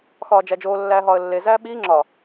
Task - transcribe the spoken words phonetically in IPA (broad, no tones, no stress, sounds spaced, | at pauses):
x ɒː d͡ʒ æ d͡ʒ oː lː æː ɦ ɒː ə̯ lː e z æː ɓ iː ŋ͡ǁ ɒ